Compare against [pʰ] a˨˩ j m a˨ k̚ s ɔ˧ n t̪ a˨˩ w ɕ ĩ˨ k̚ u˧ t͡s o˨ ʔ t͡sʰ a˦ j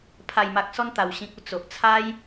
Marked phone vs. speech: correct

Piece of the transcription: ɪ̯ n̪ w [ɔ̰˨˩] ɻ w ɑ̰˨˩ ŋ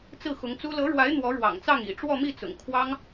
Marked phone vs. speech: incorrect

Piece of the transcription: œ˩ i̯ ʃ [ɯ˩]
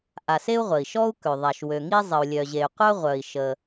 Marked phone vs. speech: incorrect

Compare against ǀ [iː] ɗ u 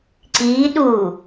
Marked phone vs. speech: correct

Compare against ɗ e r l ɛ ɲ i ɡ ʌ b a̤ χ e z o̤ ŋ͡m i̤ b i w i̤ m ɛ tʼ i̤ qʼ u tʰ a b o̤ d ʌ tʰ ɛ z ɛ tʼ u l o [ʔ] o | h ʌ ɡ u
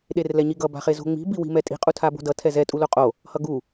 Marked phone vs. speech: incorrect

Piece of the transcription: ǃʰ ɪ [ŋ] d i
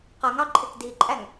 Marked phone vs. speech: incorrect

